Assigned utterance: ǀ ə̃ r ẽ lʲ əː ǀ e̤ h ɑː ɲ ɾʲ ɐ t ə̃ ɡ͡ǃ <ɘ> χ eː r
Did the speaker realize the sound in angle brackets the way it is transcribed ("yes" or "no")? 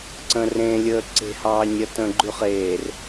no